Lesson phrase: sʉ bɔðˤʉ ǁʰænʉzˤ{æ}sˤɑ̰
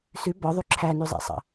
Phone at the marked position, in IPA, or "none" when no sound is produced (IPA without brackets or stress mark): æ̰